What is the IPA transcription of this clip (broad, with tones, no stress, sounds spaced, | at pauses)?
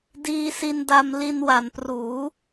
d iː˧ s i˧ n d a˧ m l i˧ n w a˩˦ n p r uː˩˦